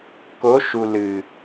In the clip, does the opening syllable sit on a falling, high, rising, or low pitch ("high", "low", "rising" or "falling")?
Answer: rising